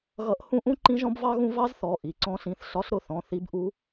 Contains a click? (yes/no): yes